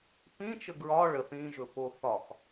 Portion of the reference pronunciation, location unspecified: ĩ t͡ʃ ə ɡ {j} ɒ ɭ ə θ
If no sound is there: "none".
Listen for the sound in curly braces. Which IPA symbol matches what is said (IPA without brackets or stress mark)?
ɹ